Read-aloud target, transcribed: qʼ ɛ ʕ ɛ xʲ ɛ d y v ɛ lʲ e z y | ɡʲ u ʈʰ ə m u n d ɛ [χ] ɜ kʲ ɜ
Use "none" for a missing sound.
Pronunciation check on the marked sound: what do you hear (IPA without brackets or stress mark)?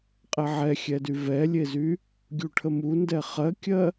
χ